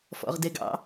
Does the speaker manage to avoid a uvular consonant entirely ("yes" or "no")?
no